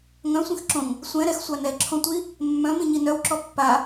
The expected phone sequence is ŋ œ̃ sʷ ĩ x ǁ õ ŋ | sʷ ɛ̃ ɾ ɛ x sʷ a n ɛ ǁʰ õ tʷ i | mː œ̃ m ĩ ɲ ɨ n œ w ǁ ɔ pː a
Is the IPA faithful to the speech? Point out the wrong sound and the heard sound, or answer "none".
ɨ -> i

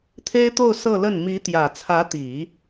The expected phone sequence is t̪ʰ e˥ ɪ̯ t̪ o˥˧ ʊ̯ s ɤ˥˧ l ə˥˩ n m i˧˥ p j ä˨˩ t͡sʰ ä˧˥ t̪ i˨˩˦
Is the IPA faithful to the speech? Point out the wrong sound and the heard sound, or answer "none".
p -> t̪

